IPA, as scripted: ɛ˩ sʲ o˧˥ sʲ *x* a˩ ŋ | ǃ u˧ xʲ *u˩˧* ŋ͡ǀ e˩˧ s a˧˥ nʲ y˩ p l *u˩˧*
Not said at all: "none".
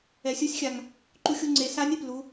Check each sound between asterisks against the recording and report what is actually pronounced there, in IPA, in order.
xʲ, u˧, u˩˧

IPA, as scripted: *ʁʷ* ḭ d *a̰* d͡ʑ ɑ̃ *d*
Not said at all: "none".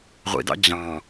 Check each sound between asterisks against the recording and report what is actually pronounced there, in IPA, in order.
ʁʷ, ɑ̰, none

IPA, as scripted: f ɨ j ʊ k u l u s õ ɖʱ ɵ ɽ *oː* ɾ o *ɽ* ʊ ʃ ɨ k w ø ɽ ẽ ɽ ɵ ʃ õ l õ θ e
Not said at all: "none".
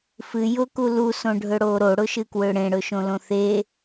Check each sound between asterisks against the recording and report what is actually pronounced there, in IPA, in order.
oː, ɽ

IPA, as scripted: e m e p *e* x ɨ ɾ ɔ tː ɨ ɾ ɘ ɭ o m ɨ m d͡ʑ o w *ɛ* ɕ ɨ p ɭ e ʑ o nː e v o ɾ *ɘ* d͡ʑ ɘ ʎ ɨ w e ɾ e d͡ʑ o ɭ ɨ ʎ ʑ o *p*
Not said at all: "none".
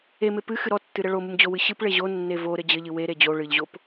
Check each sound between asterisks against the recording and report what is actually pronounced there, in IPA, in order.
ɨ, ɨ, ɘ, p

